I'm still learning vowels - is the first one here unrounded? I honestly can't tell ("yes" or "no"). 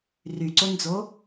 no